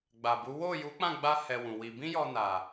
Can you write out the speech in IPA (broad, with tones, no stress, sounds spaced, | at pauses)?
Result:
ɡ͡b a˨ b u˨˦ w o˦˨ j u˨˦ k͡p ã˦˨ ɡ͡b a˧ h ɛ˧ w ũ˨ w i˧ b ĩ˦ j ɔ˧ n a˨